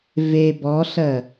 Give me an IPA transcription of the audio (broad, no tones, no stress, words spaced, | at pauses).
ve bɔɬɜ